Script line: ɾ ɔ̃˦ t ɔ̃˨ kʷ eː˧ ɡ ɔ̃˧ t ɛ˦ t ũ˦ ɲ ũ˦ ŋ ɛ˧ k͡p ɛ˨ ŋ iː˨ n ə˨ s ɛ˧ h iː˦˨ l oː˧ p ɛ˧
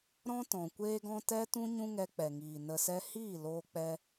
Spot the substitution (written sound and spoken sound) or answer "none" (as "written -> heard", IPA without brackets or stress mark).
p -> k͡p